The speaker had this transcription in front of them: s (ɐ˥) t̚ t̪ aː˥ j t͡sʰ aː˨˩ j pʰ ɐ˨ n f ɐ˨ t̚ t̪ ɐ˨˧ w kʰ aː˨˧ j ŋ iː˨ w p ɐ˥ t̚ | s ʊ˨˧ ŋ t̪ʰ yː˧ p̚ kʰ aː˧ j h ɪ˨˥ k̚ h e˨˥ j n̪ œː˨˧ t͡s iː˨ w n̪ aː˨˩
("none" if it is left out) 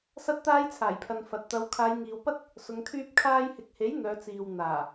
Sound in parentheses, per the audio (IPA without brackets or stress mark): ɐ˥